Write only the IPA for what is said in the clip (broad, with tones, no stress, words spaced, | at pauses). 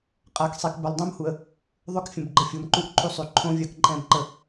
qʼa˨ksˤi˨k bə˨lˠdˤõ˦mhu˨ə̯ | ðˤʏ˦kfʲə̃˨b ɡ͡ǃə˦˨fʲo˨m ǃu˦ʔǃʰu˦sˤy˨ ǃʰõ˦vʲa˦kǃʼɛ̃˦b ǃə˦